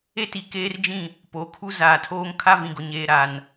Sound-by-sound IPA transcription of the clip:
e˦ t i˨ k eː˦ r d͡ʒ ĩ˦˨ | p oː˨ kʰ u˦ z aː˨ tʰ oː˦ ŋ kʰ a˦ v ĩ˨ ɡ ʊ˨ ɲ eː˨ ɾ a˨ n

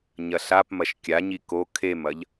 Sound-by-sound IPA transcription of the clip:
ɲ ɐ ɬ a p m ɐ ʃ kʲ a ɲ i k o kʰ e m ɐ ʎ

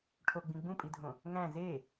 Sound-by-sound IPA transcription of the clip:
ʈʰ o ɡ͡b ĩ ɡ͡b ũ pʼ i dʱ õ | ŋ æ̃ z e

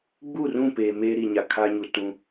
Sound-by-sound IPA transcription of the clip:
ɡ͡b u˦˨ r ũ˦˨ p eː˨ m eː˦ ɾ i˨ ɲ a˨ kʰ a˦ ɲ u˨ t ũ˦

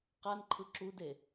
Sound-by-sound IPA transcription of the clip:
q a n ǃʰ ɯ ǁ u d e

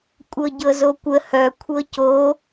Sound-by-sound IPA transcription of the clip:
kʷʼ ɤ ɟ ɤ z o kʷ ə h œ kʷʰ ɤ c o

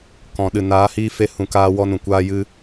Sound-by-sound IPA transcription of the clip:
k ɔ̃˨ ɗ ɨ˨ n aː˨˦ h iː˧ f e˨˦ h ũ˨ k aː˧ w ɔ˦ n ũ˨ kʷ aː˦ j ɨ˦

